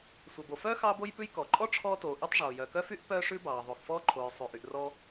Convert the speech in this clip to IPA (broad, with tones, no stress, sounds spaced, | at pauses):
sʷ œ˩ b o˩ f œː˥ x ɑː˥ b o˥ j p ʉ˥ j k ɔ˩ ǃʼ ɔ˥ ʈ͡ʂʰ ɔː˥ t oː˩ ʔ y˥ tˤ ʐ oː˩ j œ˩ k œ˥ f y˥ ʔ p œː˥ ʂ ʉ˥ b ɑː˩ ðˤ o˩ x f ɔː˥ ǃʰ oː˩ j sˤ ʉ˩ ʔ y˩ ʔ r ɔ˥